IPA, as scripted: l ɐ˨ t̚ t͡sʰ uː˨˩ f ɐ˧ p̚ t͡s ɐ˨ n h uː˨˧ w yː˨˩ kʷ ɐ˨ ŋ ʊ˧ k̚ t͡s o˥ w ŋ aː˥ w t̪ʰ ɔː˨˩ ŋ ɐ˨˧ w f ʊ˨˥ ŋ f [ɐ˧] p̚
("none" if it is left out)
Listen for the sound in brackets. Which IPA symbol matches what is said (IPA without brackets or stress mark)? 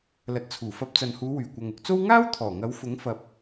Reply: ɐ˨˥